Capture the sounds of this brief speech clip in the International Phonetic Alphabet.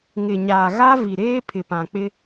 ŋ ɪ˨ ɲ aː˨ ɣ a˦ v i˨ ɾ eː˦ pʰ ɪ˨ p ã˨ k͡p ɪ˦

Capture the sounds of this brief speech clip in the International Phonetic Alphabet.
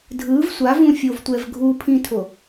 dʱ ɯ v sʷ a v ũ fʲ o v tʷ ɛ v ɡʱ u pʰ ĩ tʰ o

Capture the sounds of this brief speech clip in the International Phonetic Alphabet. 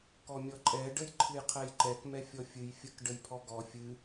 k ɔ mʲ ɔ ǃʼ ɛ ɖ ə j ǃʰ ɨ j qʰ ɛ j ǃ ɛ k m ɛ fʲ ɔ fʲ ɨ j fʲ ə k ɖ ə j pʰ ɔ ɡ ɔ fʲ ɨ

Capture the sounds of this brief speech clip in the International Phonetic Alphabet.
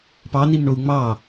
p ɑ n i m ɳ o u̯ ŋ͡m ɑ

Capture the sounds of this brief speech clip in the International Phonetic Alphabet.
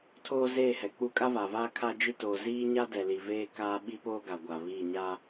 tʰ oː˦ z eː˦˨ h ɛ˨ k͡p u˦ kʼ a˦ v a˨ v aː˦ kʰ a˦ d͡ʒ i˦ t oː˨ z iː˦ ɲ a˦ d ɛ˨ l i˨ v eː˦ k aː˦ ɓ i˦ p oː˦ ɡ a˨ ɡʷ a˨ β iː˦˨ ɲ a˦

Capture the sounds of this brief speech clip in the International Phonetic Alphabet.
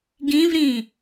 ɡ ĩ v ɾ ĩ

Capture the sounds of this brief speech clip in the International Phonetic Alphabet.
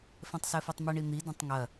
f ɛ̃ tˤ s ɛ f i tˤ m ɛ ɳ i n̪ i d ɐ̃ tˤ ŋ ɐ

